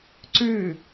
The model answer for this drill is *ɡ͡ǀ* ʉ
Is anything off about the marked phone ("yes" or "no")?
yes